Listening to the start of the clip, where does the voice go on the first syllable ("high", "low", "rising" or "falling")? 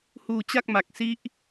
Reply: low